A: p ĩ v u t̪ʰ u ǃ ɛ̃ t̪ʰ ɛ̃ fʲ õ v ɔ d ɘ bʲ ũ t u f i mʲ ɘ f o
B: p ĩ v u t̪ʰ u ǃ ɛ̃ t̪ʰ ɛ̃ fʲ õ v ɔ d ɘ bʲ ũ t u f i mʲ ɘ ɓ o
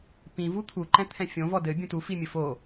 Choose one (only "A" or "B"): A